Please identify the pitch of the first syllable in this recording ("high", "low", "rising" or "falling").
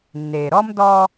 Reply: low